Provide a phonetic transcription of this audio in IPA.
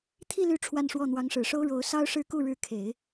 t̪ʰi˥˧ ly˥˧ ʈ͡ʂʰwa˥˧nʂwɔ˥˩ n̪wɑ˧˥ŋʂɻ̩˨˩ʂo˥ʊ̯ ɻo˧˥ʊ̯ sɑ˥ʊ̯ʂɻ̩˥˧ ku˥˩ɻɻ̩˧˥kʰe˨˩˦ɪ̯

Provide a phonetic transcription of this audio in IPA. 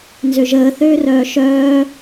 nzøʒəː θøːrœːʃœː

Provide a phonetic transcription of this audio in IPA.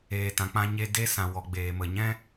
eː˨tã˨k͡pã˧ɲe˧ de˧ sã˨ wɔ˨ɡ͡beː˨mə˨ɲɛ̃˦

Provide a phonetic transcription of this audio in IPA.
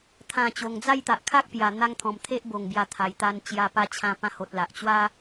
t̪ʰã˨˩ t͡ɕo˨˩ŋd͡za˥˧jt̪a˨ʔ kʰa˦k̚ pja˨˩ n̪a˧ŋ t̪ʰɔ̃˨˩mt̪ʰe˦ʔ bo˨˩ŋbja˧ t̪ʰa˨˩jt̪a˧n t͡ɕja˧ pa˧t͡ɕʰã˧ pã˧ho˨t̚ la˨ʔt͡ɕwa˦

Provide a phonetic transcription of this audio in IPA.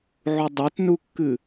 ʕudˤatnukːɨ

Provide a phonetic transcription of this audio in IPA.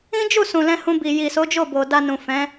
ĩ˦d͡ʒu˦˨sũ˨ lɛ̃˧hũ˧ bi˨ji˨so˨˦ d͡ʒo˦˨bo˨ da˧nũ˨ fɛ̃˨˦

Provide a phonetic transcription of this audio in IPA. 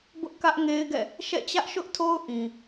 bʊ˦ʔkä˦ʔŋe˦ɪ̯ɡɛ̰˦˨ | ʃɛ̰˦˨t͡ɕä˦ʔʃʊ˦ʔtʰo˦ʊ̯ ʔĩ˨

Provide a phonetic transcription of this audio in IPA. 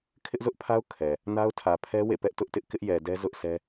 kʰɪ˦ʔzʊ˦ʔpʰa˦ʊ̯ kʰɛ˨ | na˦ʊ̯tʰä˨pʰɛ˦ wḛ˦˨pɛ˦ʔ tʊ˦ʔtɪ˦ʔ kɪ˦ʔjɛ˨dɛ˦ zʊ˦ʔsʰɛ˦

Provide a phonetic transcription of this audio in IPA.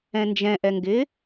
ɛ̃nd͡ʒɛ̃ ʔɛŋɡɪ

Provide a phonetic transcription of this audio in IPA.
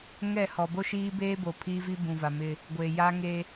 ŋɛ˦˨hɔ˨ bo˦ʃiː˦beː˦ bo˨ pʰiː˦vi˦ bũ˨va˨mɪ˦ | ɡʷe˨ ja˦ ŋe˦

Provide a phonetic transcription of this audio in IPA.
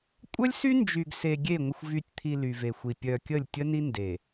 kʷʼœ˦lʲsy˦ nd͡ʒy˨ɡ se˨ɡʲe˦˨ ŋʷə˨xʷvy˨tʲ t̪ʰi˨ ly˨ve˨xʷi˨ pʲœ˨ kʲə˦˨lʲtʲə˦ni˦ nde˨

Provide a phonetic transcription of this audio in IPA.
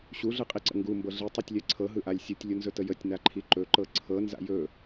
ɕuɮɯqʼiǀə̰ ŋɡumbɤ ɮitˤutʲlʲɜ ǀʰɤɦɯʔalʲ sʲutʲlʲunzɵtə jətʲnaǃʰi ǃɵǃɤ ǀʰɤnza̰ jɵ

